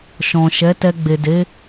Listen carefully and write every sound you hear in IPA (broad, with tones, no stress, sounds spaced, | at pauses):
ʃ ɔ̃˨ ʃ ɛ˨˦ t ɛ˧ ɡ͡b e˨ d e˨˦